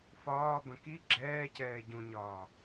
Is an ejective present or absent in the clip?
absent